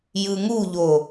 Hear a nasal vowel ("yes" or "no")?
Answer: no